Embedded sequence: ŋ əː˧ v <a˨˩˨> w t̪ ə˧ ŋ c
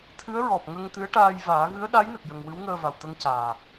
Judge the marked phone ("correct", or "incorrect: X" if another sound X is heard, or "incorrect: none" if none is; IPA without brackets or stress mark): incorrect: a˨˩